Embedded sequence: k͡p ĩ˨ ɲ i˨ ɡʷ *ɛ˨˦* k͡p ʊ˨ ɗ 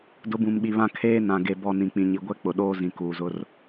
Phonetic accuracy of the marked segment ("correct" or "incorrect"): incorrect